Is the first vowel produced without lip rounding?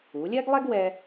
no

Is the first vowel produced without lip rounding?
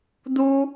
no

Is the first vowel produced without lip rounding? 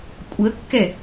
yes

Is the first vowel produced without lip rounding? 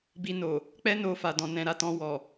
yes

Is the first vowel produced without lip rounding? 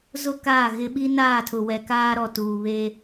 no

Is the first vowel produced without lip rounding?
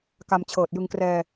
yes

